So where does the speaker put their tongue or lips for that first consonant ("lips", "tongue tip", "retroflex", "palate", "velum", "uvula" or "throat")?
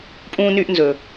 lips